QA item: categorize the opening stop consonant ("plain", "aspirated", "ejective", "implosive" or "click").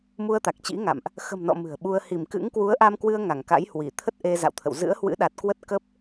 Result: plain